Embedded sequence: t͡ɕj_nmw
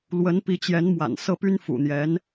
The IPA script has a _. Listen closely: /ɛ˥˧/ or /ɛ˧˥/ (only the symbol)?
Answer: ɛ˧˥